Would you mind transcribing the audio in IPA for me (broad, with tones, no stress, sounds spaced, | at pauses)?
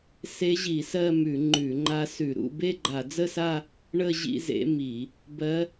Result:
s e˦˥ ʑ i˧˩˧ s ɜ˥˧ m ʉ˧˩˧ ŋ͡ǃ ʉ˧˩˧ ŋ͡ǃ a˦˥ s ʉ˧˩˧ ɾ ṵ˥˧ b e˥˧ ɡ͡ǃ a˧˩˧ d͡z ə˥˧ s a˥˧ | ɳ ə˥˧ ʑ ḭ˥˧ z ḛ˦˥ m i˧˩˧ | b ɜ˦˥